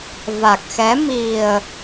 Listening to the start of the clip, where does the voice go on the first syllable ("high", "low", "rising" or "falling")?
low